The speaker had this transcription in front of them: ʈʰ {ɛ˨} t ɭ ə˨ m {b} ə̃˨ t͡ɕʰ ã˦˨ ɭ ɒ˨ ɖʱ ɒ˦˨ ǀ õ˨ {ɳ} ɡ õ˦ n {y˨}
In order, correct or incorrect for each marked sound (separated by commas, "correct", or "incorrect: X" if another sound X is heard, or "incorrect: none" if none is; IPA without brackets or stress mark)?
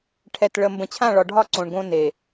correct, correct, correct, incorrect: e˨